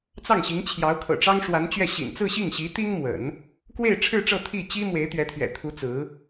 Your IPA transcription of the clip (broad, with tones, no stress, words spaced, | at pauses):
t͡sɑ˥˩ŋɕi˧˥ŋt͡ɕʰjɑ˧˥ʊ̯ kʰɤ̰˨˩ʈ͡ʂɑ˥ŋʂwa˧˥nt͡ɕɥɛ˥˩ ɕḭ˨˩nt͡sɹ̩˥˧ɕi˥˩ŋɕi˧˥ t̪i˥ŋmwə̰˨˩˦n | kwe˥˧ɪ̯ʈ͡ʂʰɻ̩˥˧ʈ͡ʂɤ˥˧ t̪ʰi˥˩t͡ɕi˥ mwe˧˥ɪ̯t̪ɥɛ˧˥t̪ʰɥɛ̰˨˩t̪ʰu˧˥ t͡sɹ̩˧˥